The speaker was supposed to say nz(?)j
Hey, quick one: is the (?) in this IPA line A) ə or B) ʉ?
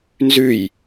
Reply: B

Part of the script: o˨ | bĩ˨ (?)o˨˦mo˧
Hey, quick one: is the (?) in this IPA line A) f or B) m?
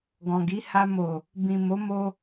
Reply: B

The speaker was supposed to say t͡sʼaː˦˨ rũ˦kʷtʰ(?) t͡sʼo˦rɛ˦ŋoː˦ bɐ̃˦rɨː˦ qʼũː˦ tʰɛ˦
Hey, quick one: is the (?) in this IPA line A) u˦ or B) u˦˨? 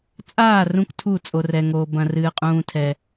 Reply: B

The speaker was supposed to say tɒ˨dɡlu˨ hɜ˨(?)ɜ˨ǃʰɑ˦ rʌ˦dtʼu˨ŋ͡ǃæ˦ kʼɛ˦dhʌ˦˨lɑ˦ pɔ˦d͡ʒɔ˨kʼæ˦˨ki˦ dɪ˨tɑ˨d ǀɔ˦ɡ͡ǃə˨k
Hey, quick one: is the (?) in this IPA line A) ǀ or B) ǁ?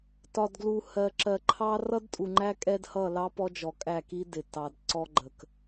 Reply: B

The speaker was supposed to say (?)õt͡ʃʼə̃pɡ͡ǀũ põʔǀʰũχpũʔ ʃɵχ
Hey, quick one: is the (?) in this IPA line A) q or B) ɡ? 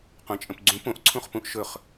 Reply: A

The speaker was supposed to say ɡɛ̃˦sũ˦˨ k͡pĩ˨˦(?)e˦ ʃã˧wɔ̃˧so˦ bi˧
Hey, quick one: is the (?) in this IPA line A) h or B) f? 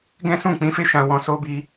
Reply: B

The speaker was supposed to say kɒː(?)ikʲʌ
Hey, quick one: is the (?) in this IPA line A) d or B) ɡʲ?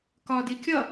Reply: A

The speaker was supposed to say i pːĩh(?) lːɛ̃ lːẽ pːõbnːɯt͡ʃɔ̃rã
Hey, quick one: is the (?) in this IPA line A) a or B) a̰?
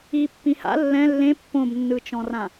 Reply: B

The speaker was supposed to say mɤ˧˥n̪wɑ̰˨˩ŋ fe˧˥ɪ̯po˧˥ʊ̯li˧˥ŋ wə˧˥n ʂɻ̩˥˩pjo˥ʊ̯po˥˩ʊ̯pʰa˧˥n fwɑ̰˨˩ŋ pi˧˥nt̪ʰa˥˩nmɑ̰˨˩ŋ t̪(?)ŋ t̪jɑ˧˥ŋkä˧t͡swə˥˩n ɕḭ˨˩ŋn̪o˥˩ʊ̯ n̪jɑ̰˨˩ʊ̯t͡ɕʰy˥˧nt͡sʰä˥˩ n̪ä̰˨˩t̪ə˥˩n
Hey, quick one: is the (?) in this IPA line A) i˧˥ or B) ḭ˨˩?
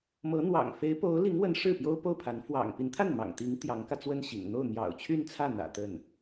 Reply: A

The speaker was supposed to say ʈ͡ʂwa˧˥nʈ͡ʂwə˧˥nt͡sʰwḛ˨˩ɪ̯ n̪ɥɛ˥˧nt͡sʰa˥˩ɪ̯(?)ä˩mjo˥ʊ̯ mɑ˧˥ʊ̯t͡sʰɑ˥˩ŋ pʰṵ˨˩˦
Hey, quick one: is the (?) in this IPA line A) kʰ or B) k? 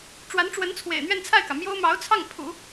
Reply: B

